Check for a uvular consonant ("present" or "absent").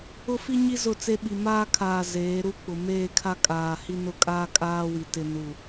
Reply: absent